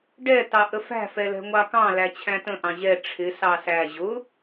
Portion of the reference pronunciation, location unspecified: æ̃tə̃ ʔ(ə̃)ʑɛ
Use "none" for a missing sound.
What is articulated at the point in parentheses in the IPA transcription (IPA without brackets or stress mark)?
ɑ̃